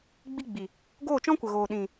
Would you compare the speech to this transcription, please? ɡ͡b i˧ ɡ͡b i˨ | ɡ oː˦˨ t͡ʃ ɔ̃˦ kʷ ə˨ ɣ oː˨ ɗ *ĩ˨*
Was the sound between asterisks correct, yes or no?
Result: yes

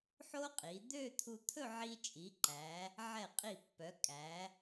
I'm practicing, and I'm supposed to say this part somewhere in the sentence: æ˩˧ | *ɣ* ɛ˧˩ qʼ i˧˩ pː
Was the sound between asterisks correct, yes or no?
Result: no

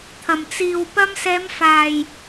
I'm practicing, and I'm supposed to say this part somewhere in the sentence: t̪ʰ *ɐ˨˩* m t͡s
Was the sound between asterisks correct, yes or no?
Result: yes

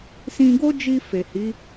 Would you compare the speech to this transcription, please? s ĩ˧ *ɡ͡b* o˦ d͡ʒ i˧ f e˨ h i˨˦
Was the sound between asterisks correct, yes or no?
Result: no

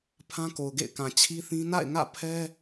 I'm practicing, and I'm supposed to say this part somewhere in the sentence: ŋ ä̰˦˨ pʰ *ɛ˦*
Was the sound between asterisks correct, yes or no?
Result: yes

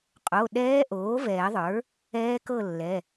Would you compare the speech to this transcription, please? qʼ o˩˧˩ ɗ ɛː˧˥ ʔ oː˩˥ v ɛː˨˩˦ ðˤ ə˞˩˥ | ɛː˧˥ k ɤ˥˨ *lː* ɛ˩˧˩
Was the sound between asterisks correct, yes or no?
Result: yes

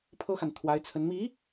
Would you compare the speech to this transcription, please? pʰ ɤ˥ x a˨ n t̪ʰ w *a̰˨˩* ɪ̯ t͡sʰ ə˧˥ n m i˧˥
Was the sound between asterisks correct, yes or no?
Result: no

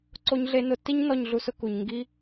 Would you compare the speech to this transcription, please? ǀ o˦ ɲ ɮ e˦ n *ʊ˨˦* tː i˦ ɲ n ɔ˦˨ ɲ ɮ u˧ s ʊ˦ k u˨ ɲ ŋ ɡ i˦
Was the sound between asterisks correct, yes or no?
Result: no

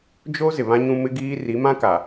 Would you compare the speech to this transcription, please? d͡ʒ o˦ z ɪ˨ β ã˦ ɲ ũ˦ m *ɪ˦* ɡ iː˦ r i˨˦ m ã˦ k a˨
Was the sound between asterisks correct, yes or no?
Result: yes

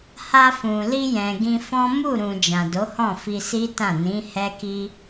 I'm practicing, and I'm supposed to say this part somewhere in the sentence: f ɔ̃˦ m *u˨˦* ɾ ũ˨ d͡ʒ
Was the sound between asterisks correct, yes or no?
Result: no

